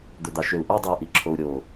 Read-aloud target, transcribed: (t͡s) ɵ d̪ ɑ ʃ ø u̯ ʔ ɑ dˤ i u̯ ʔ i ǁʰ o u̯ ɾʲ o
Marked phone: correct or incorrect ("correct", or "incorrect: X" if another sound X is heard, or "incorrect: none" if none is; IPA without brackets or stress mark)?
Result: incorrect: d̪